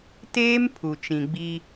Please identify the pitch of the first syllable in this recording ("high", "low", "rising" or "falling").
high